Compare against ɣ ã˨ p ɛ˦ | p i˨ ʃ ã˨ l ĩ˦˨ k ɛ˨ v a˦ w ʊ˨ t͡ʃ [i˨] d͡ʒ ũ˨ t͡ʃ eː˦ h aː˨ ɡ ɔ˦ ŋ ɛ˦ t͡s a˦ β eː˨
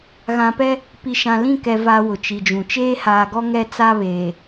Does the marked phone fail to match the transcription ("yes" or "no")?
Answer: no